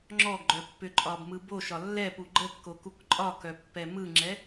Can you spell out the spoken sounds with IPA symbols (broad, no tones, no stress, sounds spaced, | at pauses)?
ŋ͡ǁ ɔ ɡ ɡ͡ǃ œ pː ʏ ǃʼ ɒ b m ɯ b o ʃ ɒ lː ɛ p u ɡ͡ǃ ə kː o k u k ǃʼ ɒ k œ pː ɛ m ɯ ŋ͡ǁ ɛ